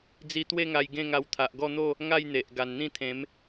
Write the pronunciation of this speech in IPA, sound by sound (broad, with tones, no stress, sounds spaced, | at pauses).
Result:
d͡z i˧ t̪ w e˥˧ ŋ a˧ j ɡ ẽ˥˧ ŋ a˧ w t̪ʰ a˨ ʔ ɡ ɔ˥˧ n̪ o˥˧ | ŋ a˥˧ j n̪ e˨ ʔ ɡ a˨˩ n n̪ ĩ˥˧ t̪ʰ ẽ˨˦ m